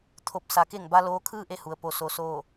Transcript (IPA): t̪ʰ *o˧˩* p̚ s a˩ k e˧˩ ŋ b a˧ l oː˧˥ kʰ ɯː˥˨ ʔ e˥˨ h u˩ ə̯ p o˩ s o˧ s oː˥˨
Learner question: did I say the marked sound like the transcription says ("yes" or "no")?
yes